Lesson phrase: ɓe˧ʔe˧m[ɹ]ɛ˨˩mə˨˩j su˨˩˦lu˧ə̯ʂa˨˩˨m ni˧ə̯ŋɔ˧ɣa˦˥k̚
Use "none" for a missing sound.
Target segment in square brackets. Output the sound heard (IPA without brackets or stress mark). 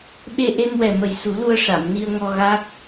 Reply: w